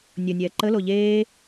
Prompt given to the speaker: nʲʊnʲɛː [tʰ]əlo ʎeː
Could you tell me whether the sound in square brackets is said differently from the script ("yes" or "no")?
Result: yes